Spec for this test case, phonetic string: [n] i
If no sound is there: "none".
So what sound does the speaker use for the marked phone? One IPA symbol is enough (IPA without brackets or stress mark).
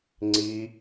ŋ͡ǀ